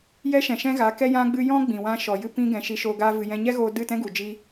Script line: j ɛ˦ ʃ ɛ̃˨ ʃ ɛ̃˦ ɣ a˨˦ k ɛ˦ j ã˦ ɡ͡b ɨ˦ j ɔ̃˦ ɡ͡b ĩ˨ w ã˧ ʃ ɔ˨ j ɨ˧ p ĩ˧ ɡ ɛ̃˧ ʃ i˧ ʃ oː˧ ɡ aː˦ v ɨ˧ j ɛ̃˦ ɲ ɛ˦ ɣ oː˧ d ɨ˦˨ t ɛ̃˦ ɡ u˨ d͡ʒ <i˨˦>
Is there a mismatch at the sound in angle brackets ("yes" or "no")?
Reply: yes